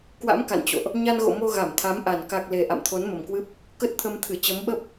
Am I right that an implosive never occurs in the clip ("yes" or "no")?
no